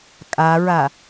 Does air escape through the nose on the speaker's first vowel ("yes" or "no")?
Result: no